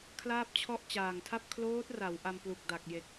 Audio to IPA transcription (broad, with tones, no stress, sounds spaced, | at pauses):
kʰ l aː˥˩ p̚ t͡ɕʰ ɔ˥˩ ʔ t͡ɕ aː˨˩ ŋ tʰ a˥˩ p̚ kʰ l oː˦˥ t̚ r a˩˦ w ʔ a˧ m p l u˨˩ k̚ d a˨˩ k̚ j e˨˩ k̚